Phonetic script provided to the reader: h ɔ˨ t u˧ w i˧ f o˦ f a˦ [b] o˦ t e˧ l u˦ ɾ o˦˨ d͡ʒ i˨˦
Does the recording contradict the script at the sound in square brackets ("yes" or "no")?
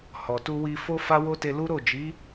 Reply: yes